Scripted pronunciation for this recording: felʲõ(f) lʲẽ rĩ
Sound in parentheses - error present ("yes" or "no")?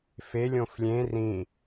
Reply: no